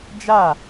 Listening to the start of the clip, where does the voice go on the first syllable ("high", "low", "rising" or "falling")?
falling